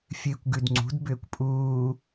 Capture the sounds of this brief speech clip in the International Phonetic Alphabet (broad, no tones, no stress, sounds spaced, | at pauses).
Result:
fʲ ɨː kʷ ɡ ʉ d ŋ͡ǀ ṳ d b ʏː kʷ pʼ uː